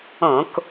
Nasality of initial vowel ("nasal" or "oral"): nasal